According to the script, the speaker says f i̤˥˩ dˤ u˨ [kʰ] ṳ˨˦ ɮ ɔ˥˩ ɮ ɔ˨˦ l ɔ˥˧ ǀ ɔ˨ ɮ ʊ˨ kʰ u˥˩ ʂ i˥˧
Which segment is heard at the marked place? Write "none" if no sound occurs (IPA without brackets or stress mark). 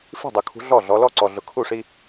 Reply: kʰ